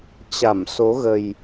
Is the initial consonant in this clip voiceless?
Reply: yes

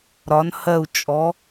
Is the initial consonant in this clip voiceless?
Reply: no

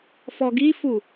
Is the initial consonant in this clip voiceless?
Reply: yes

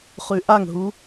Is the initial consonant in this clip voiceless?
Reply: yes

